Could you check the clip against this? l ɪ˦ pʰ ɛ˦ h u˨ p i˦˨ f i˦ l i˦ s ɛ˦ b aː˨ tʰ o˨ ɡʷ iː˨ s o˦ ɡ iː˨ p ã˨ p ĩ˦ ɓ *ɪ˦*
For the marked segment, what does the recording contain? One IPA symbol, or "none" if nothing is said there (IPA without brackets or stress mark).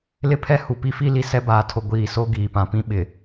ɪ˨